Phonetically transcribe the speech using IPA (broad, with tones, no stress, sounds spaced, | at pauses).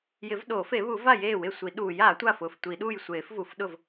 j ɪ˨˩˦ v ɗ o˨˩˦ f e˨˩˦ β u˨˩˦ v a˥˩ j eː˥˩ w ɪ˥˩ sʷ i˨˩˦ ɗ uː˨˩˦ j a˨˩˦ tʷ a˥˩ f ʊː˥˩ f tʷ i˨˩˦ ɗ uː˥˩ j sʷ eː˨˩˦ f v u˨˩˦ f ɗ ʊ˥˩ v